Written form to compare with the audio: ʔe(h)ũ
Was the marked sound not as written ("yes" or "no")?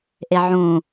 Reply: yes